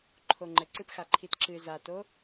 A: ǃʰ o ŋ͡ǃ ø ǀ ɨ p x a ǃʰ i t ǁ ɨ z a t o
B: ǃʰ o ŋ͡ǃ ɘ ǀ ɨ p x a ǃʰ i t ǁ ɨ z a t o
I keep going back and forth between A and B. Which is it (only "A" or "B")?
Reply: B